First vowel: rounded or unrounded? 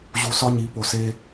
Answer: rounded